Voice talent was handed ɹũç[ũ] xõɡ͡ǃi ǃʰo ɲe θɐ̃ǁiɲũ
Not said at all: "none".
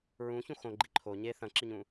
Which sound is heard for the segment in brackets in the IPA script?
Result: ũ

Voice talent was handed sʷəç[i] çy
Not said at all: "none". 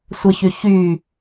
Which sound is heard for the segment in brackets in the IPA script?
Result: y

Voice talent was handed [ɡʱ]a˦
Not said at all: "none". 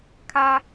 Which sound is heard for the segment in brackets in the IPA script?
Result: kʰ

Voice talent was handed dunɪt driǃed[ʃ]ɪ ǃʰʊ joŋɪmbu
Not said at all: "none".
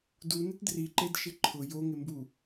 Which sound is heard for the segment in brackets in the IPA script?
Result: ʃ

